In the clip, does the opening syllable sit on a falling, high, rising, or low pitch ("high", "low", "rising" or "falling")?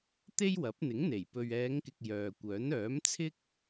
high